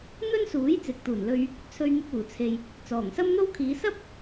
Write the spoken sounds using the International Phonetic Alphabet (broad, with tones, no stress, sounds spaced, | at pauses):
n̪ ɵ˥ n s uː˨˥ j t͡s ɪ˨ k̚ t̪ uː˨˩ n l ɵ˧ ɥ | t͡sʰ ɵ˧ ɥ n̪ ɪ˧ k̚ uː˨˩ t͡sʰ e˨ j | t͡s ɔː˨˩ ŋ s ɐ˥ m n̪ o˥ w kʰ iː˨˧ s ɐ˥ p̚